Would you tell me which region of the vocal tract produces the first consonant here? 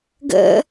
velum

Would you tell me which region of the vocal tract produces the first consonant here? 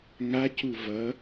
velum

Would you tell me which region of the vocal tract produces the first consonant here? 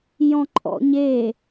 palate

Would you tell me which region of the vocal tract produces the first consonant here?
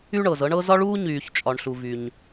retroflex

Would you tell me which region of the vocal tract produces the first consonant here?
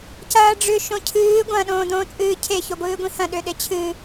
palate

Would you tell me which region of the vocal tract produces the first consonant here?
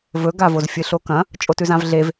lips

